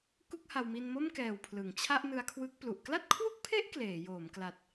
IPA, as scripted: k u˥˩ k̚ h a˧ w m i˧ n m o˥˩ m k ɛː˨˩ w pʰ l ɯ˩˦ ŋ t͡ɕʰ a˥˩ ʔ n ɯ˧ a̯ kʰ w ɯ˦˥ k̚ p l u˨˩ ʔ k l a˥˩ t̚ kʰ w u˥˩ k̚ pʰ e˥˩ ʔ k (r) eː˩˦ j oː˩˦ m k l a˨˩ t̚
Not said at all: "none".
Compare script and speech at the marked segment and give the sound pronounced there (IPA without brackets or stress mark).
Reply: l